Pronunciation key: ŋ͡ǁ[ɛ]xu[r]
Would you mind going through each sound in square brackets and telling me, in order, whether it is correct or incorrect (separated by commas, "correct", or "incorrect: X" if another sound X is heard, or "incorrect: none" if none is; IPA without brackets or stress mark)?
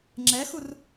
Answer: correct, correct